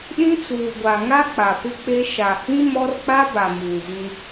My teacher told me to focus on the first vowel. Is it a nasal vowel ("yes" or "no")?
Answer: yes